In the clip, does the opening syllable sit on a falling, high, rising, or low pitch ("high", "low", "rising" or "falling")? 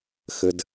low